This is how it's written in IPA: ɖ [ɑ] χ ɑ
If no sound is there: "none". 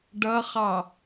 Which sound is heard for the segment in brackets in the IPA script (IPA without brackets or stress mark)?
ʌ